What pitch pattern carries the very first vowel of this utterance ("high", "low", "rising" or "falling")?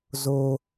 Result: high